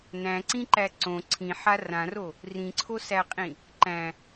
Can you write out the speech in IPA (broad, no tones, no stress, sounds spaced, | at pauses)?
n æ̃ ǀ ĩ ǃ æ ǀ õ ǀʰ ĩ ħ a r ã r o | r ĩ ǀʰ o s æ qʼ ĩ | ǃ æ̃